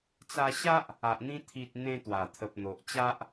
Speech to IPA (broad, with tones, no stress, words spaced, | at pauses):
t͡sa˧ɕa˦ʔ | a˨ʔn̪ĩ˧ t̪ʰi˨t̚ n̪ẽ˧ t̪wa˨˩t̪ʰə˨p̚n̪o˨ʔt͡ɕa˦ʔ